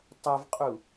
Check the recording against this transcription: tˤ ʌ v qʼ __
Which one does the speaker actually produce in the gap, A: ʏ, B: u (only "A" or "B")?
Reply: B